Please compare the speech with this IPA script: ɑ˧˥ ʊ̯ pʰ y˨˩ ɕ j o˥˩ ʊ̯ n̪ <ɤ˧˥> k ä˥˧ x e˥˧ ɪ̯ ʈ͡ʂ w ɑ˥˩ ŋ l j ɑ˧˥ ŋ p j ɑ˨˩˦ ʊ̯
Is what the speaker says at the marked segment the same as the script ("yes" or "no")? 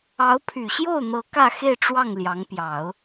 yes